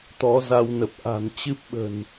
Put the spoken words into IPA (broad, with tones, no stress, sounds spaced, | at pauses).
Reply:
t̪ ɔ˨˦ z a˧ w n ə˨˩ p̚ ʔ a̤˨˩ n t͡ɕ ɨ˦˥ p̚ ɓ ə̤˨˩ n